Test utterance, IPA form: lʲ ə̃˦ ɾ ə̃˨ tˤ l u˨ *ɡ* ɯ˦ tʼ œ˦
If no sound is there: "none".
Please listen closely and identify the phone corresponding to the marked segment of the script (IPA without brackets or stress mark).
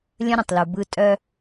b